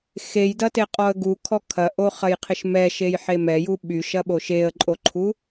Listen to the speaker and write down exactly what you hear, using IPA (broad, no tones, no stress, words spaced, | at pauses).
xejdɐteqʼɔə̯ ɡukʰɔ kʰɐʔoχɐjqʰɪʃ mɛʃejħe mɛju ɓyʃɐɓo ʃeə̯ǃʼoǃʰu